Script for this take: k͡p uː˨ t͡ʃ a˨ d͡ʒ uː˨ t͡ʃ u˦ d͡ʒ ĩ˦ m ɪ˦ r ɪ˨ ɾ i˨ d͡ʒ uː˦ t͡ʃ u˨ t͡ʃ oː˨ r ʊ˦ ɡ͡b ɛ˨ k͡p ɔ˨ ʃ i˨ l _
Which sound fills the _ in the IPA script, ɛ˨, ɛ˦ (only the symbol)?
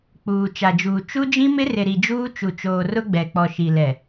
ɛ˨